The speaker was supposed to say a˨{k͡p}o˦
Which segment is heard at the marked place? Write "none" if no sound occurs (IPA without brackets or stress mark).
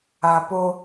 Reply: p